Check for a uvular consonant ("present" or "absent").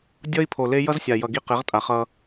present